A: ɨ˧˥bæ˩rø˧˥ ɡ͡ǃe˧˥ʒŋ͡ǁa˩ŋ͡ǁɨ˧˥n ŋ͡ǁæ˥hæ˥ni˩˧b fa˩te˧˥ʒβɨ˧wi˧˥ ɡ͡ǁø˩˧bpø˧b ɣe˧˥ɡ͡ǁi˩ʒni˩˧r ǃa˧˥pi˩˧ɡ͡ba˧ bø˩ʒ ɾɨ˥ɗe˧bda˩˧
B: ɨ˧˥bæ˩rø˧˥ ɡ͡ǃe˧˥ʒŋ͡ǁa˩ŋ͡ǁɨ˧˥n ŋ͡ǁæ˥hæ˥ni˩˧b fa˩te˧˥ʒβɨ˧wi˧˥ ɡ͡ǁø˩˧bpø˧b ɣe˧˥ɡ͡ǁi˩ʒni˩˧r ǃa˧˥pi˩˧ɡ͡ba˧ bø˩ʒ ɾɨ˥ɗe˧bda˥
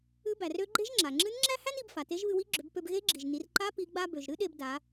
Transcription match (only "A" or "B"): A